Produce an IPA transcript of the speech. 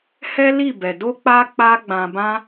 h ɛ˦ l i˦˨ b ɛ˨ d o˧ k͡p a˧ k͡p a˦ ɡ͡b ã˧ b ã˦

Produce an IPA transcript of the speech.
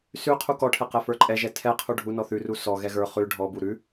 s ʉ qʰ u k ɔ ʈʰ ɛ q ɛ f ə˞ ǃʼ ɛ ʒ ɛ tʰ ɛ qʰ u ɖʱ u n ɔ θ ʉ r u s ɔ ɣ ɛ ɣ ə˞ χ ʉ ɖʱ ɔ b u ɾ ʉ

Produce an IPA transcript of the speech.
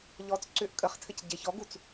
ʎ ɔ t͡s ǀ ʏ ʔ kʼ ə χ tʰ ɘ c ɟ e ç ɔ ɡ u t͡s

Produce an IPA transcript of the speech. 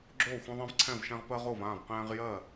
ɡ͡ǁ oː˥˩ xʷ ɛ̃˦ ðˤ ɛ̃˦ v ǀʰ ɛ̃˥˩ v ʃ ɛ̃˦ ʁ p ɜ˦ ʁ o˥˩ v ãː˥˩ v q ɛ̃ː˦ ʁ j ɜ˥˩

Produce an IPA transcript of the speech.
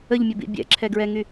ə ʎ mʲ ə b ḭ bʲ ɛ̰ ǁʰ ɛ ɡ ɹ ɛ ŋ y

